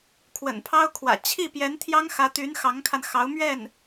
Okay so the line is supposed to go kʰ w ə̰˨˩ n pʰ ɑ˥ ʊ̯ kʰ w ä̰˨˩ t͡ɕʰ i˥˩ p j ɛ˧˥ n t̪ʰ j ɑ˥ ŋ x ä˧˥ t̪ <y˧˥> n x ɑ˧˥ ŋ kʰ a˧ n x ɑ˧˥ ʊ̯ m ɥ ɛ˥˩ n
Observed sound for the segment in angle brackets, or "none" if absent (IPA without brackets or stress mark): y˧˥